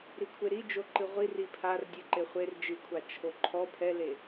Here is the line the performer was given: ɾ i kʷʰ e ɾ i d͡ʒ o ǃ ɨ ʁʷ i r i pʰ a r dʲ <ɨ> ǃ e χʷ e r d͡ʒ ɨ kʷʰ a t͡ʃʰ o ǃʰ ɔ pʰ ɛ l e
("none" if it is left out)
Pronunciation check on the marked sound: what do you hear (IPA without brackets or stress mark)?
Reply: ɨ